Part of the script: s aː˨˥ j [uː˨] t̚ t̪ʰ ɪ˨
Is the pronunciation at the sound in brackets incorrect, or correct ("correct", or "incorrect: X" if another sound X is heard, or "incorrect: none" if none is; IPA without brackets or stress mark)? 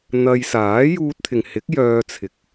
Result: incorrect: uː˧